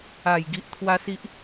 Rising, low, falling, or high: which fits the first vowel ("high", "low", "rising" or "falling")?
falling